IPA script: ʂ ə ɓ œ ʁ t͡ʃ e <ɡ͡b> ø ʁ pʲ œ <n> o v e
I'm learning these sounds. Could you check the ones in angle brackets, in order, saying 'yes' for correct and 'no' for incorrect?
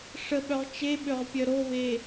no, no

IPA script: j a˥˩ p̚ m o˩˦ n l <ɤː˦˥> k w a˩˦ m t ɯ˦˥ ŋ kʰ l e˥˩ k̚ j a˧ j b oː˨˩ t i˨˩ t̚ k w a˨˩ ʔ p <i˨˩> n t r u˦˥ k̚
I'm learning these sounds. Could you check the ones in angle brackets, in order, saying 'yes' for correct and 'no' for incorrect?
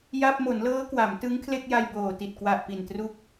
yes, yes

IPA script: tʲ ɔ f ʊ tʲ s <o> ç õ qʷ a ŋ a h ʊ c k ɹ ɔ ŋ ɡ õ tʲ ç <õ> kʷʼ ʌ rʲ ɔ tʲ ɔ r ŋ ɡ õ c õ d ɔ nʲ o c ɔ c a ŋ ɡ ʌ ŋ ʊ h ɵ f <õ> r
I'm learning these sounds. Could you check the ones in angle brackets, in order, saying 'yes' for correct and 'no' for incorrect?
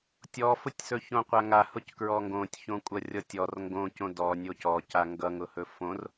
no, yes, yes

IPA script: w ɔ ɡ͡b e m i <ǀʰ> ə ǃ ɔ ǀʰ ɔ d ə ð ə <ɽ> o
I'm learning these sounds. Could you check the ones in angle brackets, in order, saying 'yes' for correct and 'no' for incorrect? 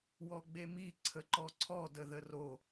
yes, no

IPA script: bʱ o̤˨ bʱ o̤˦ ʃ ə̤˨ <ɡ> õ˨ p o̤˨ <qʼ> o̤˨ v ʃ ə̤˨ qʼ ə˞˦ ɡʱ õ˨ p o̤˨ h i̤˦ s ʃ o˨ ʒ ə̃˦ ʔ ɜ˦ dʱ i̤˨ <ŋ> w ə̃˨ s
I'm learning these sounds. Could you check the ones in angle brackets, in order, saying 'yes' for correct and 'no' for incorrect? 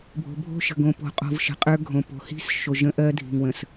yes, yes, yes

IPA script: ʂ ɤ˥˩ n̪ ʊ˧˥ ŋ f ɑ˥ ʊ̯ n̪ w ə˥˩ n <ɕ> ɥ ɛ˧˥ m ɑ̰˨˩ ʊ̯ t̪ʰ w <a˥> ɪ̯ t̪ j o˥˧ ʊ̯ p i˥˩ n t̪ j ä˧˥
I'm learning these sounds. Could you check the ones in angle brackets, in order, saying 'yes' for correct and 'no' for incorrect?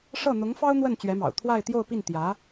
no, no

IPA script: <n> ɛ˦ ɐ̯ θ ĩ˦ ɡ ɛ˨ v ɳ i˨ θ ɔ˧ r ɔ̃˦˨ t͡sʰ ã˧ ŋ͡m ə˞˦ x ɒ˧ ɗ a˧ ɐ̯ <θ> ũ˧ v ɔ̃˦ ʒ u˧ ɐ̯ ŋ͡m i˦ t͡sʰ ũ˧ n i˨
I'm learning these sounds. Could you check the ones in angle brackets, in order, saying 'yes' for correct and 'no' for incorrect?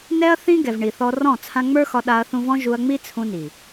yes, yes

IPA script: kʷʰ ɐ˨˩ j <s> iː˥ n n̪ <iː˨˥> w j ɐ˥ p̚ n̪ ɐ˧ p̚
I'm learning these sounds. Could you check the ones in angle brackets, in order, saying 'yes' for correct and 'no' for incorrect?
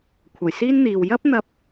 yes, no

